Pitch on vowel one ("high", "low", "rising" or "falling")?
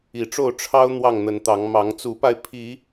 low